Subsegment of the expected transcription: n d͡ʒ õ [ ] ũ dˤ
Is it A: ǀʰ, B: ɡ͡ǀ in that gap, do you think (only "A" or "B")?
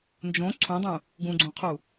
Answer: A